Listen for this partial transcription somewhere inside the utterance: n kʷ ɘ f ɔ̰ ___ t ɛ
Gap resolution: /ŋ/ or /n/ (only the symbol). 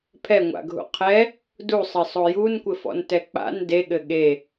n